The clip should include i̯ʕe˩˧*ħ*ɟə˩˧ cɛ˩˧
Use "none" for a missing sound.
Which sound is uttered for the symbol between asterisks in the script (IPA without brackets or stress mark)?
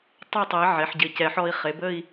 ħ